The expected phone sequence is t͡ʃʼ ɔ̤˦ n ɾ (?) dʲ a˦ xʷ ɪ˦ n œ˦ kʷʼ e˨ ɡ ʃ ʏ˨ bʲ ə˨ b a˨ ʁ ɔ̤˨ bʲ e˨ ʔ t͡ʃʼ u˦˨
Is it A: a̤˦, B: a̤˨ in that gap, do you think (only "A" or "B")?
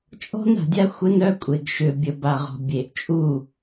B